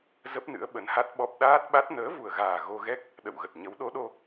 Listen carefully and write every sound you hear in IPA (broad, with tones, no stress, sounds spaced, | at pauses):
z ə˦˥ p̚ n ɨ̰˧˥ ə̯ ɓ ə˨˦ n h a˦˥ t̚ ɓ ɔ˦˥ p̚ ɗ aː˦˥ t̚ ɓ a˦˥ t̚ n əː˨˦ v u˨˩ ə̯ ɣ aː˨˩ ɣ o˧ ɣ ɛ˦˥ k̚ | ɗ ə̰˧˨ w ɣ ə˨˩ t̚ ɲ ə˨˦ w ɗ o˨˦ ɗ o˧